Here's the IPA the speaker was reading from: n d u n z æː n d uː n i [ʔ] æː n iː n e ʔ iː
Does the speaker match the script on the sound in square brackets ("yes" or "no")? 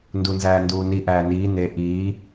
yes